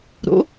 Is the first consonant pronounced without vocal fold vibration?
no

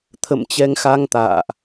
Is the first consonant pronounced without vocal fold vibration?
yes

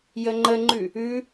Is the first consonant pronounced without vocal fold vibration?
no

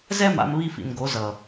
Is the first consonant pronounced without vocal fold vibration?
no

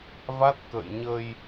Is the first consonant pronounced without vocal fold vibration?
no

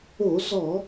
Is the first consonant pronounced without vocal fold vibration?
no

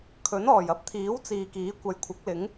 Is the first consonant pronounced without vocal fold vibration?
yes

